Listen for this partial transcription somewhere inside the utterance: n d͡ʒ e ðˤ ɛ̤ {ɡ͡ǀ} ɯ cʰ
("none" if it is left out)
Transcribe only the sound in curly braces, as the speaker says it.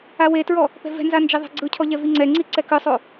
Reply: ɡ͡ǀ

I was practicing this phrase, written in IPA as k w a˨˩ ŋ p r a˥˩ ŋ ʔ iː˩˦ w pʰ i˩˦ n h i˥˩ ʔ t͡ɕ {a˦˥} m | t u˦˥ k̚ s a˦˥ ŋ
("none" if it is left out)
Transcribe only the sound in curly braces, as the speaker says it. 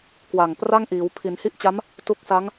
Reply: a˦˥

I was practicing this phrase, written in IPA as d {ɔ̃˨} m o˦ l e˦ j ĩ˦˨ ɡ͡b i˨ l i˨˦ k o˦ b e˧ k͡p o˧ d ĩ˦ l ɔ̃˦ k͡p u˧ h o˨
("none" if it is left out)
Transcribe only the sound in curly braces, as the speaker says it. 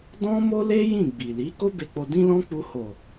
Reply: ɔ̃˦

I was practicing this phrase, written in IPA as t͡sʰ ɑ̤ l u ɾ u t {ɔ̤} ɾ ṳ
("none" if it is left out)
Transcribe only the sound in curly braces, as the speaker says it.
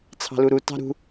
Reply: ɑ̤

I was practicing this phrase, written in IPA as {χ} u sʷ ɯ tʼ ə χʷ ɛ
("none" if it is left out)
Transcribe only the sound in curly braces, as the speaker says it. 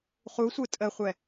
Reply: χ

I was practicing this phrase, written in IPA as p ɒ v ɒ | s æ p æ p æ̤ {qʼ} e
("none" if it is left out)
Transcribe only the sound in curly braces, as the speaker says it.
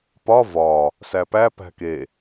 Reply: k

